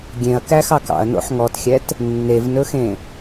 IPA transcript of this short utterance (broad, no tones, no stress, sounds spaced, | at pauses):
ɡʲ ẽ ɐ̯ k æ x ɑ k ɑ̰ ɐ̯ n o̰ ħ ŋ ɔ t xʲ ɛ t | nː e v n ɵ x ẽ